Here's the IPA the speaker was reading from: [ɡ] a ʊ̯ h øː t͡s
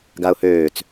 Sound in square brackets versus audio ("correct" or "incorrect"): correct